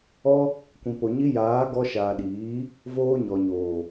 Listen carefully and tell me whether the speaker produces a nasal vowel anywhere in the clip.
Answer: yes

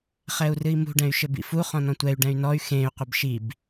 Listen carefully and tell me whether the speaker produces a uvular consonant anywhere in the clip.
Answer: yes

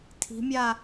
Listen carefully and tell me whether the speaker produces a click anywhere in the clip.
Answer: no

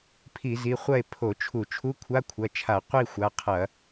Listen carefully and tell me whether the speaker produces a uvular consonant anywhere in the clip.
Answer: yes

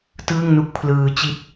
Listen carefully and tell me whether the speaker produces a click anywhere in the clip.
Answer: no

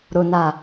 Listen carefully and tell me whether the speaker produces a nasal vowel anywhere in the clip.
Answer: no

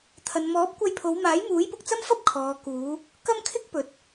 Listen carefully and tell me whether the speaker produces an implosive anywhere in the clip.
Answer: no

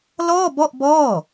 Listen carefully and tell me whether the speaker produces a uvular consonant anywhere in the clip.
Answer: no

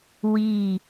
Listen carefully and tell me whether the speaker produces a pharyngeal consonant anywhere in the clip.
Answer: no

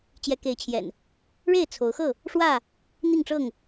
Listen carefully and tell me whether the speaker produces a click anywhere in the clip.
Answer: no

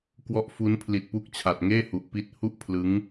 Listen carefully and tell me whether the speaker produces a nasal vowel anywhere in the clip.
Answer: no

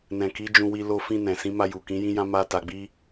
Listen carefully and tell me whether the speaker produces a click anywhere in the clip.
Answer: no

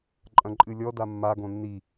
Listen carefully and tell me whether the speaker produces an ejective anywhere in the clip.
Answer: yes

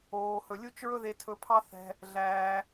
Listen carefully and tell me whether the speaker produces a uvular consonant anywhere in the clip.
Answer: no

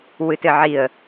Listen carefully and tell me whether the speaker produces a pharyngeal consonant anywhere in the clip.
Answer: yes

